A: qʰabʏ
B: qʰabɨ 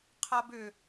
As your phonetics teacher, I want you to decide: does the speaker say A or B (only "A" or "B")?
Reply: A